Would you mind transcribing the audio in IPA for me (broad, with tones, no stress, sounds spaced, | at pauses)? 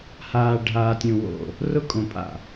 h aː˨ ɖʱ aː˨ tʲ ũ˨ w o̰˨ | r ʊ˦ kʼ õ˨ pʼ a̰˨